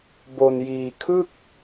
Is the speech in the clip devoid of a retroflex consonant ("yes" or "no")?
yes